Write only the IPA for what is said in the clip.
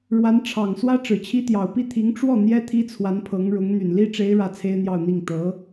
ɻwa˧˥nʈ͡ʂʰɑ˨˩ŋswä˥ ʈ͡ʂɻ̩˨˩t͡ɕʰi˥t̪jɑ˨˩ʊ̯ pi˥˩t̪ʰi˧˥ŋ ʈ͡ʂwɔ˥˩ n̪jɛ˥t̪ʰi˥ t͡sʰwa˧˥npʰɤ˧˥ŋɻʊ˧˥ŋ n̪y˨˩nli˥ʈ͡ʂe˧˥ɪ̯ ɻä˥˩t͡sʰe˥ɪ̯n̪jɑ˥˧ʊ̯n̪i˥˩ŋ t̪ɤ˧˥

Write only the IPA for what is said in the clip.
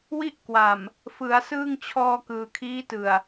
wi˥˩ʔkwa˨˩m | fɯ˩˦a̯ sɯː˥˩ŋ t͡ɕʰɔː˧kɯː˨˩kʰiː˦˥tɯ˨˩a̯

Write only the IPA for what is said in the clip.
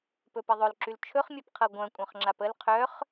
pɵpeðˤɵlǁyl t͡ʃʰɵχmʲœp qʰɤɡʷœ̃ kʷʼœ̃χŋ͡ǁapəl qʰœχ

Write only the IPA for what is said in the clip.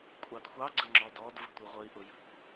kʷʼɑdxʷɑ ɡ͡ǀəŋ͡ǁɔdɔd və̤tʷiʁʷəi̯ ʔʊjə̤kʷ

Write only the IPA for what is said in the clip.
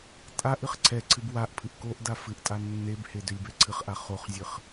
tʼaʔ ɨχǀʰɛǀʰɨb waʔpʰɨʔ koʔda fɨʔtʼa nːebhe dʏlʲbɛǀʰɨχʔa χoχzʲɨχ

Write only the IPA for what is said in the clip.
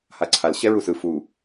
haǀʰal ɕɛɹusɯ fu

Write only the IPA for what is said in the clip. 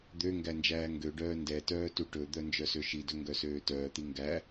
d̪ø ŋɡænd͡ʒæːŋɡøɖœː ndɛtœː tuʈɵd̪œ nd͡ʒœsøʃidɵ ŋɡœsøːtœːt̪i ŋɡæ

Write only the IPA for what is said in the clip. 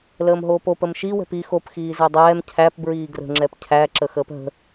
ləːmɦoːpop əmʃi wɛ̤pi xop xiːzɛdˤɛːm cʰæp bɹiːɡrə̤ ŋ͡ǁɛpcʰæ ǁəxəːpɦə̤

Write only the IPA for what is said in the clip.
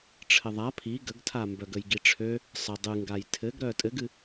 ʈ͡ʂʰɘðˤa pʰi ɡəɡtʰambœɡəj ɡiʈ͡ʂʰø | sˤə dˤɨŋɡaj tʰɘɡɾœ tʼɘɡɨ

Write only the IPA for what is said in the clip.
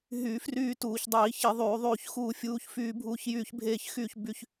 ɦy˧˩˧ fryː˥˧tuː˧˩˧çdˤiː˧˩˧ çi˧˩˧ ðˤyː˧˩˧ðˤyː˥˧çxuː˥˧fʲuː˥˧ç fyː˥˧bʱuː˥˧çjyː˥˧ç bʱeː˥˧çxyː˥˧çby˥˧ç

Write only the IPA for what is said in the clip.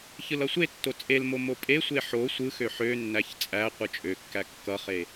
çɯlʌsʷetːo t͡sʼelmo mopʼesʷe ħo sʷɯxø ħønːæç t͡sʼæ qʷɯt͡ʃʼøkːæ kːʌχe

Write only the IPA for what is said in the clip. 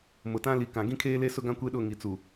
mʊ˨ tã˦li˨ kã˨ ɡĩ˦kʰeː˦le˦ sʊ˦ɡã˦ kʷe˦ɗʊ˦˨ ŋi˨t͡su˨

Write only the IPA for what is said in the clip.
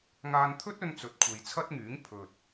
ŋaː˧nt̪ʰɵ˥t̚ɵ˧n t͡sɵ˨˥t̚kʷʰe˨jt͡sʰɐ˥t̚ŋyː˨˥ŋ pʰɵ˨t̚

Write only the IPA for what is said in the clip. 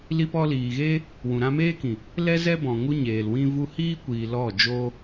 li˧pɔ˧ liː˨ɣeː˦ | wũ˨ɾã˧meː˦kĩ˨ | lɛ˦zɛ˦bɔ̃˨ ŋu˦ɲeː˨lwĩ˦ vu˧hiː˦kʷiː˨ lɔ˦˨d͡ʒoː˦

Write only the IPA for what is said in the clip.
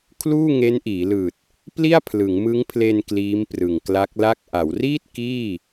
kʰluː˥˩ŋe˦˥nʔiː˩˦lɯː˨˩t̚ | pli˥˩a̯pʰlɯ˩˦ŋmɯ˦˥ŋpʰle˧n kliː˦˥mprɯ˨˩ŋkla˦˥k̚la˥˩k̚ ʔa˩˦wriː˥˩t̚ kiː˥˩

